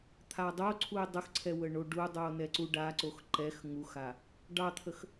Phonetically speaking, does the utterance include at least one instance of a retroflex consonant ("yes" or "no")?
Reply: yes